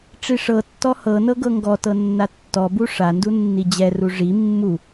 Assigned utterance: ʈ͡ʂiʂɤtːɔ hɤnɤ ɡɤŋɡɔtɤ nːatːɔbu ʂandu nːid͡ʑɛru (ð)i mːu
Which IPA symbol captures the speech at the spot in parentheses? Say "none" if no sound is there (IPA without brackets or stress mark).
ʐ